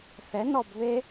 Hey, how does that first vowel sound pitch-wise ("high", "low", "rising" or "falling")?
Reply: rising